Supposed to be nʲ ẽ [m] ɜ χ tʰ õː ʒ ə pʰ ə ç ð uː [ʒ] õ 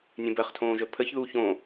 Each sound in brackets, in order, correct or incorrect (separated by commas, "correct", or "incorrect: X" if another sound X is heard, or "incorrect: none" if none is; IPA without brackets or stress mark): incorrect: b, incorrect: ç